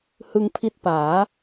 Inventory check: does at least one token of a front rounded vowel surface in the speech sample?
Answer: no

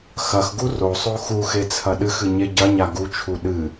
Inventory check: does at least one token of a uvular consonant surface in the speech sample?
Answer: no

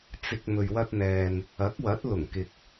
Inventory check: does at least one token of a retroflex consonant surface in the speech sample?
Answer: no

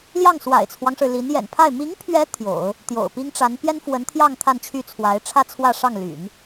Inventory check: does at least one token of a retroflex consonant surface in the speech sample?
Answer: yes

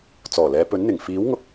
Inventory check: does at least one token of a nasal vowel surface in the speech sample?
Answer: no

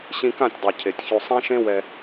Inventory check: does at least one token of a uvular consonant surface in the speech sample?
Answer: no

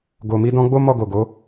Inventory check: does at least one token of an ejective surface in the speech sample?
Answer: no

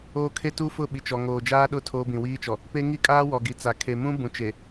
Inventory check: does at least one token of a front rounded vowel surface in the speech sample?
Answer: no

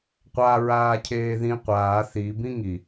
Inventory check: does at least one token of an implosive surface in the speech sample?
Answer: no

